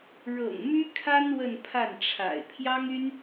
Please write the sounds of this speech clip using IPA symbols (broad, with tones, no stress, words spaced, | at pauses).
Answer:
ɻɤ̰˨˩ŋmy˥kʰa˥n wə˥˧npʰa˥˩nʈ͡ʂʰa̰˨˩ɪ̯ pʰjɑ˥ŋy˥n